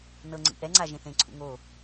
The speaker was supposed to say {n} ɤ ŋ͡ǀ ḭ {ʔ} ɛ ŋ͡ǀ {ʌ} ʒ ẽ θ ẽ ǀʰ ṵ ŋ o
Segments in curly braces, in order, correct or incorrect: correct, correct, incorrect: a

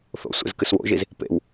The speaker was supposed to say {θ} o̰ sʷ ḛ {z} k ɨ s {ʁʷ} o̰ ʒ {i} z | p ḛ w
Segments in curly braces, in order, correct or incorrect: correct, correct, incorrect: w, correct

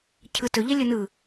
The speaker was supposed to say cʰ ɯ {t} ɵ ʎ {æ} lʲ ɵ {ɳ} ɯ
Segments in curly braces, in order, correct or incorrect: correct, incorrect: ɛ, incorrect: n

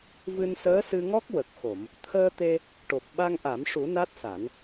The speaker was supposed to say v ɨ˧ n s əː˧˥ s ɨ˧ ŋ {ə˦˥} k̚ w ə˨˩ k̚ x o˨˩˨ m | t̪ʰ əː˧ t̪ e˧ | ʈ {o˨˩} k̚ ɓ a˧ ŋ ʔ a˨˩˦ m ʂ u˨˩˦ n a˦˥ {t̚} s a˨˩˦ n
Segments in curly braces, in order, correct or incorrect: incorrect: ɔ˦˥, correct, correct

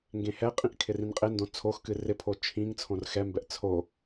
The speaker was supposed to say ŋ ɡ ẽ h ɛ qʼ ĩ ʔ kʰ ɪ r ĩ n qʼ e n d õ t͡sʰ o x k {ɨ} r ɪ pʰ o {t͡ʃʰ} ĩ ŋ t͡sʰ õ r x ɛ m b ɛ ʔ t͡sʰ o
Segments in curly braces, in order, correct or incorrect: correct, correct

